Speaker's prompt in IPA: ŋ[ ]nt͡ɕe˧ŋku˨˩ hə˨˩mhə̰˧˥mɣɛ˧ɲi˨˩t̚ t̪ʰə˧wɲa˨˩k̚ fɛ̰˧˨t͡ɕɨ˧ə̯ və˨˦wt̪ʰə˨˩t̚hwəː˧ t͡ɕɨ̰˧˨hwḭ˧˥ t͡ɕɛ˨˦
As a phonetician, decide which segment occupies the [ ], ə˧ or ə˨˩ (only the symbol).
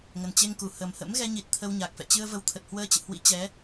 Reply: ə˨˩